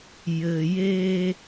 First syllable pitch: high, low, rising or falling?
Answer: low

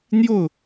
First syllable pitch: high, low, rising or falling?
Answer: falling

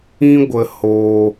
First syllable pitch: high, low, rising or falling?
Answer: high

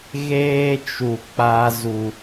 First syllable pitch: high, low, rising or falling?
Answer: high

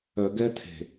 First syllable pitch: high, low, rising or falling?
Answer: low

